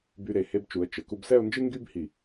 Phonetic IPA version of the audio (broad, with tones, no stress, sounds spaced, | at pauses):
b y˧ ɾ e˩˧ h e˧ b t͡ʃ u˩˧ ə̯ t͡ʃ ə˩˧ k u˧ b s ɛ˥˧ ʊ̯ n d͡ʒ ɨ˥ ŋ ɡ y˥ b h i˧˩